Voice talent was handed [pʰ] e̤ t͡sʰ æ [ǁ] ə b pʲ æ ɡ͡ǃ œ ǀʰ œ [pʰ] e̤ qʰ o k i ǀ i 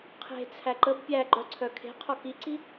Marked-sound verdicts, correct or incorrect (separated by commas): incorrect, incorrect, incorrect